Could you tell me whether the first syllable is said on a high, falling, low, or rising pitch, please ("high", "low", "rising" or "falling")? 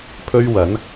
high